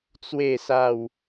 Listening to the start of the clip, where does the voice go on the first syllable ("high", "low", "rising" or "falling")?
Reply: low